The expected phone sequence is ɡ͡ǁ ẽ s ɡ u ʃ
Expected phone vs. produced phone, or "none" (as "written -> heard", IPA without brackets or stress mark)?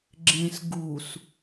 ʃ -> s